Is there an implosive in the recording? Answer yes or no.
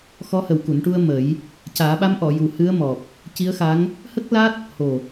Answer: yes